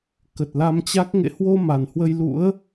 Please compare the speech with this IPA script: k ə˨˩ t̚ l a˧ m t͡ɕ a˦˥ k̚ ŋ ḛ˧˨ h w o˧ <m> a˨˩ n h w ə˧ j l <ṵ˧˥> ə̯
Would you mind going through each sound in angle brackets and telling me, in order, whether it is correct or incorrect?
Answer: correct, correct

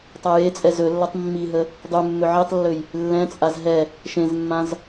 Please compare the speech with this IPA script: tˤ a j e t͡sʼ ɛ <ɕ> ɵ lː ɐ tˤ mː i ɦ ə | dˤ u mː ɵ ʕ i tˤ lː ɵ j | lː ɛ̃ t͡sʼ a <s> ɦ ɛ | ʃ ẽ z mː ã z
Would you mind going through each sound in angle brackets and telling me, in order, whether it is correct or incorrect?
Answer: incorrect: z, incorrect: z

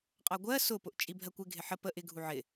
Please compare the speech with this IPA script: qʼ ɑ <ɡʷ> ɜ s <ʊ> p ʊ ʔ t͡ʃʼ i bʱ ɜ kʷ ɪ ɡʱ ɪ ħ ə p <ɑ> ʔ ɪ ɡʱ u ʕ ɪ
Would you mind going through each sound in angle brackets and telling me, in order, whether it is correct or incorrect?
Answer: correct, correct, incorrect: ə

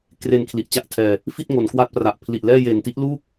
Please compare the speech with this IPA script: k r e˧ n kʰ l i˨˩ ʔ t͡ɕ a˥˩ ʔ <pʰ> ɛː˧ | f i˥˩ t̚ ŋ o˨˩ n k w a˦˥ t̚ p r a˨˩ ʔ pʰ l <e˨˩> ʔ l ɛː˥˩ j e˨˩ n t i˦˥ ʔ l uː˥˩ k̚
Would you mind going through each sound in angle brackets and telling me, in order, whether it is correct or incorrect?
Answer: incorrect: tʰ, incorrect: i˨˩

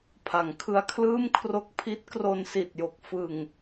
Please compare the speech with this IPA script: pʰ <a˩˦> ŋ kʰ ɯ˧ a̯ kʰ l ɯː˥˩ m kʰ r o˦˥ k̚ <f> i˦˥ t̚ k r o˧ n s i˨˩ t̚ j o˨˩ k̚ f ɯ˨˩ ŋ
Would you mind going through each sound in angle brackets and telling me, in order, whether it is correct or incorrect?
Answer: correct, incorrect: pʰ

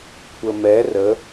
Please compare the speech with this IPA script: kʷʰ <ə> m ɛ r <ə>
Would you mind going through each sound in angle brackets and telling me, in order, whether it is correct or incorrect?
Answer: correct, correct

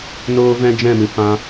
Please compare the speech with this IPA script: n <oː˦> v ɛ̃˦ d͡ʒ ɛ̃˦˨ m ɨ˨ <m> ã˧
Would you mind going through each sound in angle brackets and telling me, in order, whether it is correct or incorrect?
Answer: correct, incorrect: p

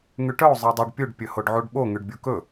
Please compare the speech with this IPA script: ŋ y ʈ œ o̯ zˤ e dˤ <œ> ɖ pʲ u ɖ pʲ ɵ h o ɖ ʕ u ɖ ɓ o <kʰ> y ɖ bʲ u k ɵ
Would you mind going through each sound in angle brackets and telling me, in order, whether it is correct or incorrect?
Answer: correct, incorrect: ŋ

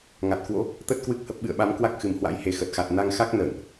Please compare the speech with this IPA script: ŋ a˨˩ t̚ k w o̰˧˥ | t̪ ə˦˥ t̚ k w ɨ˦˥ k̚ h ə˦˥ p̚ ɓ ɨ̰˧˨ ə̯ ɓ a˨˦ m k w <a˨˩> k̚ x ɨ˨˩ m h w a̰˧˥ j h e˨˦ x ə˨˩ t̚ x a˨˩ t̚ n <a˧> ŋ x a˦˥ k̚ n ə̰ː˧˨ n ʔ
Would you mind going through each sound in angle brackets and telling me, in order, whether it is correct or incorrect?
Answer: incorrect: a˦˥, correct

